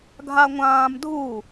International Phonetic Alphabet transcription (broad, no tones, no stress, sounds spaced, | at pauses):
ɡʱ a ŋʷ ãː m dʱ u